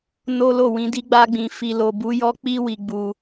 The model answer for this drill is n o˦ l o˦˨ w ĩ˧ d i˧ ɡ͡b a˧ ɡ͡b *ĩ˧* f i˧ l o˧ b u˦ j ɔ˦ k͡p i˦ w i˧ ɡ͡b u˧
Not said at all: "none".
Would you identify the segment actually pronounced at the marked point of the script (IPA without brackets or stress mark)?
ĩ˧